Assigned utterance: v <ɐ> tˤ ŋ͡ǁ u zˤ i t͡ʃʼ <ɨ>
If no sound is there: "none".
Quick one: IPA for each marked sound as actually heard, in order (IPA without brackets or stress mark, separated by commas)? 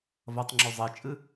ɐ, ɨ